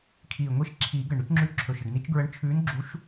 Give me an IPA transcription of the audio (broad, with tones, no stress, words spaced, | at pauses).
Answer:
kʰiː˨˩ ŋʷi˧˥ʃǁʰiː˨˩˦ɡə˨˩ɳ ɾʉ˧˥t͡ʃŋ͡ǁʉ˧˥ǁʰɵ˨˩ʃə˨˩ɖ ni˧˥t͡ʃɡɹə˧˥ɳ t͡ʃʰʉː˧˥nɡ͡ǁu˧˥ʃ